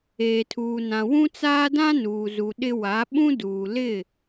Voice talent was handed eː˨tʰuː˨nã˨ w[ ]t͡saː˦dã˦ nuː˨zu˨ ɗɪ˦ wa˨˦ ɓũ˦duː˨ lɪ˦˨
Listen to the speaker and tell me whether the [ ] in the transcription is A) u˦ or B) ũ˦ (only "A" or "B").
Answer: B